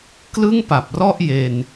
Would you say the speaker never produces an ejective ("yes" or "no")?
yes